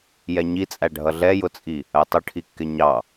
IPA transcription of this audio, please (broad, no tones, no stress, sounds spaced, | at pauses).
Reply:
j ɛ ɲ i t͡sʼ æ ɖʱ ʌ ɮ ɛ j ʊ t͡sʼ i | ɜ tˤ ʊ ʈʰ i kː ɪ ɲ ɑ